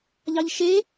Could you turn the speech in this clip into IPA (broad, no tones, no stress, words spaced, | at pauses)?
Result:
ʎɑʎʃe